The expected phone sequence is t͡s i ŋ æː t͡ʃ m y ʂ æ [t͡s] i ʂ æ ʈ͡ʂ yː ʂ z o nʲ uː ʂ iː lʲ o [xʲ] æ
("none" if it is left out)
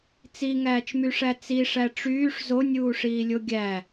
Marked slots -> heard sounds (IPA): t͡s, ɡʲ

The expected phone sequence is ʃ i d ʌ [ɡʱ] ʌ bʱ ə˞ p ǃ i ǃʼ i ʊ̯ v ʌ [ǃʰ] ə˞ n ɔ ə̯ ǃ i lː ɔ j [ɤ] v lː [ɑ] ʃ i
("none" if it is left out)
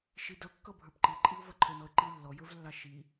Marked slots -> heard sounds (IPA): kː, ǃʰ, ə˞, ɑ

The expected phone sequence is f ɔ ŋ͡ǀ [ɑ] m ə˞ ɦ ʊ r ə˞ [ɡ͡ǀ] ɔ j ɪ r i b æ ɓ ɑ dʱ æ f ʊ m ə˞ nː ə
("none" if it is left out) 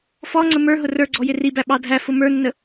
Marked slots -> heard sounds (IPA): ə, ɡ͡ǀ

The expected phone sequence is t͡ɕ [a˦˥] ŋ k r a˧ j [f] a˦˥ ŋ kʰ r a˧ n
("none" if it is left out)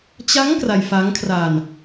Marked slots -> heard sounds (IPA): a˦˥, f

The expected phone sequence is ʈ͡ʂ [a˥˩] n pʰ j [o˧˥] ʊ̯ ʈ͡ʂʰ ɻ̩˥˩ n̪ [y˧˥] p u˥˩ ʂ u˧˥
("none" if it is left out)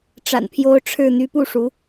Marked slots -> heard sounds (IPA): a̰˨˩, o˧˥, y˧˥

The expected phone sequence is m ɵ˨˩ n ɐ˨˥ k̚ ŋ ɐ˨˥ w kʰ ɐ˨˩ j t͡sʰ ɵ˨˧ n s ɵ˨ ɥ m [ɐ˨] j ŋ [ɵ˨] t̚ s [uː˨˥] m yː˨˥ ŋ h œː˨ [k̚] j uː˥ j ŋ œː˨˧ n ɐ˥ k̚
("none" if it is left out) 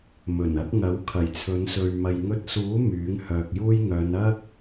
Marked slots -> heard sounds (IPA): ɐ˨, ɵ˧, uː˨˥, k̚

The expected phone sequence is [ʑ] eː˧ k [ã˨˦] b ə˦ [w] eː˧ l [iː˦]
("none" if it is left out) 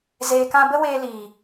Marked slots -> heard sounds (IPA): z, ã˦, w, iː˨

